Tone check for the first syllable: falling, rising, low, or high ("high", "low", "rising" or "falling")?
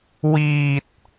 low